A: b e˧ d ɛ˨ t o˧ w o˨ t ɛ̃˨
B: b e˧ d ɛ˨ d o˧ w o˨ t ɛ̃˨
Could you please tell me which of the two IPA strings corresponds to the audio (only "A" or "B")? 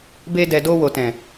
B